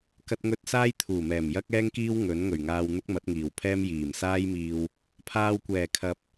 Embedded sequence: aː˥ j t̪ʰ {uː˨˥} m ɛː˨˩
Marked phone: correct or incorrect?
incorrect